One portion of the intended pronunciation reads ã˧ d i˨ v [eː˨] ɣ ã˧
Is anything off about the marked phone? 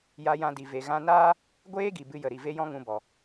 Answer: yes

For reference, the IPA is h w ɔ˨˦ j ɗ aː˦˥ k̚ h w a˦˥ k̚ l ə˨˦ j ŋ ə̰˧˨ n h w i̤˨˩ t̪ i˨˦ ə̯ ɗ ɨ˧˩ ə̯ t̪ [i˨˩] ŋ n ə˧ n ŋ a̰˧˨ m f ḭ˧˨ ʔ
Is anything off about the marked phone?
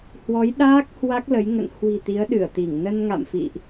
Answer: yes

